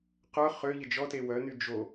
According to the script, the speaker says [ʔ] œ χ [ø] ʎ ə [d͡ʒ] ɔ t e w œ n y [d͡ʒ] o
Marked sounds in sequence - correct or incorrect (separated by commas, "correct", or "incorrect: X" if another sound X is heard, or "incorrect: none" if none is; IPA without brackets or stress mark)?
incorrect: q, correct, correct, correct